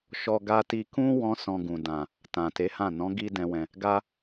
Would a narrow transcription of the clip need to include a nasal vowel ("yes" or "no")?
yes